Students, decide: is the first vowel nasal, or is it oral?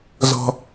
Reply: oral